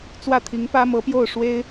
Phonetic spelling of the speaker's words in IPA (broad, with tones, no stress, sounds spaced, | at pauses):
t͡s w ä˥˩ t̪ʰ i˧˥ ŋ p ä˥ m ɤ˧˥ p j o˥˩ ʊ̯ ʂ w e˥ ɪ̯